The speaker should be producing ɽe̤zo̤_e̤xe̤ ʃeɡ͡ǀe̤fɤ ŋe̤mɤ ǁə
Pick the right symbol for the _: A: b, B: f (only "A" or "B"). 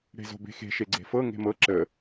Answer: A